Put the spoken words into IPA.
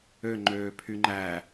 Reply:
ø ŋ͡ǃ øː pʰ y ŋ͡ǃ æ

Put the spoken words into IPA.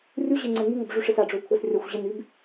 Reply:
rʲ u ʑ e ŋ͡ǀ ɛ ŋ y ŋ ə b ʐ y ʂ ɪ s a ɖ͡ʐ ø u̯ kʷʰ ɐ s rʲ ɐ xʷ ʑ ɪ n y b

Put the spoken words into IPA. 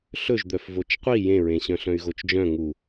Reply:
ɬ ɵ ʒ d̪ œ f v o t͡ʃ qʷ i j ẽ ɹ ẽ ɕ œ̃ ɬ œ̃ y̯ ɣ o t͡ʃ d͡ʒ œ̃ ŋ u

